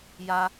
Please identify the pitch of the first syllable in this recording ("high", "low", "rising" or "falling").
high